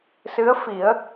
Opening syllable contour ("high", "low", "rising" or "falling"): rising